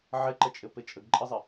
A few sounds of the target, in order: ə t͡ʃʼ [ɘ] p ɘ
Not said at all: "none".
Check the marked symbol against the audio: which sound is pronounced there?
ɘ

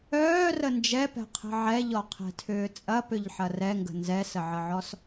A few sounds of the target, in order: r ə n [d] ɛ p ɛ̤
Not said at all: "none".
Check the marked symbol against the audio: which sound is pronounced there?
d͡ʒ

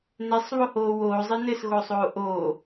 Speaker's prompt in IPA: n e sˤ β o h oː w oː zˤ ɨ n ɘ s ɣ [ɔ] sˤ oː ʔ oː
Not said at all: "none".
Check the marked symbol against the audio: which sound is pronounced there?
o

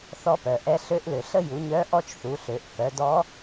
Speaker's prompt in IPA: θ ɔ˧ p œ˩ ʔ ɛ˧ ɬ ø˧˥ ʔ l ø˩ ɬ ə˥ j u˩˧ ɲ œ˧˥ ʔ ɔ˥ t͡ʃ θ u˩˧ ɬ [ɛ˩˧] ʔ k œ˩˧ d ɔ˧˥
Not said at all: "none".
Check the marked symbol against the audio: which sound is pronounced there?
ø˩˧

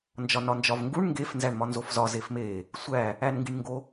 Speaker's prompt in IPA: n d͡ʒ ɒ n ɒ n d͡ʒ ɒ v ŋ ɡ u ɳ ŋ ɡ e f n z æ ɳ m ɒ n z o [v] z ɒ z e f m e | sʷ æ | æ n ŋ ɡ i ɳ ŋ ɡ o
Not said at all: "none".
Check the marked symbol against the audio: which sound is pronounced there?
f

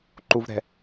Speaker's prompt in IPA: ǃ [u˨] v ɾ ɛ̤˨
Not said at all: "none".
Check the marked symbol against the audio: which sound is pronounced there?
u˨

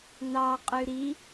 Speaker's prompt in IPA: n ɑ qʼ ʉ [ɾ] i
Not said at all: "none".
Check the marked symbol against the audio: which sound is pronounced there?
ɾ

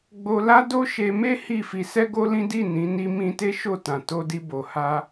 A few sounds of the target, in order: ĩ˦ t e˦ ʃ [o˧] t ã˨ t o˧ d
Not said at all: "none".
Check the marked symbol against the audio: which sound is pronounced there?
o˦˨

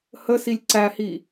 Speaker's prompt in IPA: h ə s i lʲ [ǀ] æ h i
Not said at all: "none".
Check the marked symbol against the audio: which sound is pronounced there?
ǀ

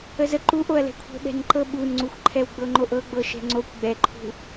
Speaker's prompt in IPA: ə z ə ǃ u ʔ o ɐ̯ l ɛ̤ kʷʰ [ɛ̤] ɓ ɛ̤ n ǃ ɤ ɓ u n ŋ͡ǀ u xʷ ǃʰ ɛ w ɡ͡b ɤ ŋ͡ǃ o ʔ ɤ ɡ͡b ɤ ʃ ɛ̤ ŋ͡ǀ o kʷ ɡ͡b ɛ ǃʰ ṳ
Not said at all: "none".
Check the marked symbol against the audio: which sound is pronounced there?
ɛ̤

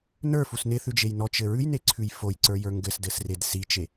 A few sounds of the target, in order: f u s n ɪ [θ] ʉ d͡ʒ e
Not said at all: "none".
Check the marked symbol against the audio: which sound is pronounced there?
θ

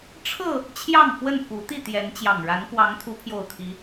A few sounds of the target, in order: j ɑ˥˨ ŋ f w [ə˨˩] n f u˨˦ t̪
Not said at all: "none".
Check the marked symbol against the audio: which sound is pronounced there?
ə˥˨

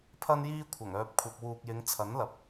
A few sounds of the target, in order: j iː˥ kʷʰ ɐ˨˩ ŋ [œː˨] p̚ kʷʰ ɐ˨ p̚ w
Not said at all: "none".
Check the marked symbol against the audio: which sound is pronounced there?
œː˨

